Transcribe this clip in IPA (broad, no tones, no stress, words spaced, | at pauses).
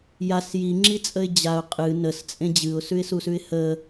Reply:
jas jiŋ͡ǁit͡sʼəɪ̯ d͡ʑaʊ̯ qʼɨ nəst͡sʼẽ d͡ʑɨʊ̯sʉɪ̯susʉɪ̯ hə